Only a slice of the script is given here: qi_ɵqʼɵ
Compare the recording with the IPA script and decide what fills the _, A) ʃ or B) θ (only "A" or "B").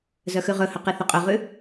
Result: B